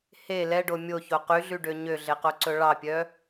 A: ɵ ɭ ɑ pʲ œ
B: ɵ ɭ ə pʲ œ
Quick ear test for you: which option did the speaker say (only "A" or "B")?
A